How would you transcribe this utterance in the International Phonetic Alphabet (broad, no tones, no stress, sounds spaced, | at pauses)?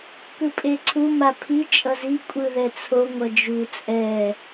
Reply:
k ɯ pʼ e ǀʰ u m a pʰ i t͡ʃʼ ʌ z i kʷʼ ɯ ð ɛ t͡sʰ o ŋʷ ʌ d͡ʒ u t͡sʼ ɛ